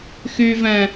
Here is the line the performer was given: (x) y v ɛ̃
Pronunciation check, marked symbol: correct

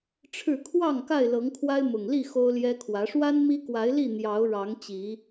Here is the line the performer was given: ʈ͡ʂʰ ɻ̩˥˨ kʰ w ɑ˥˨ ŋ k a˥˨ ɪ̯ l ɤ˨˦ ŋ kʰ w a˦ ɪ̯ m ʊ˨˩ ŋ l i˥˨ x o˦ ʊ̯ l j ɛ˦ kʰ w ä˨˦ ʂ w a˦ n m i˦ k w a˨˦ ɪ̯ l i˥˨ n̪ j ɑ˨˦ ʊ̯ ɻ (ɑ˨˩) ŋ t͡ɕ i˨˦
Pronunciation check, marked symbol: incorrect: ɑ˨˦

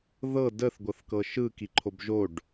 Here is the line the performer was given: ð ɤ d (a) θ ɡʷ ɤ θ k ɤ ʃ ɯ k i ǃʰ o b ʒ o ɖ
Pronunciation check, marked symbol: incorrect: ə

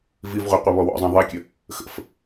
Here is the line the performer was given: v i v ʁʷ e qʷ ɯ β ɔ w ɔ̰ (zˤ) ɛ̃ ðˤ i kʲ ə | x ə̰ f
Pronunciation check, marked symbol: correct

